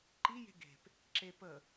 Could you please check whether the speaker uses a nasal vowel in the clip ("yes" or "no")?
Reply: no